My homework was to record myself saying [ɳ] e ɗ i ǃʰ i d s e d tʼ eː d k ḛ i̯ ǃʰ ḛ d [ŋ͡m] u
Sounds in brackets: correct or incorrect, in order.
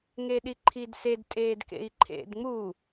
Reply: incorrect, correct

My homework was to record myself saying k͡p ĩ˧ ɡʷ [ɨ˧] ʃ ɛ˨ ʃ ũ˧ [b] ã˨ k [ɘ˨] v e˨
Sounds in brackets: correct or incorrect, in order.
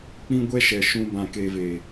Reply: incorrect, correct, incorrect

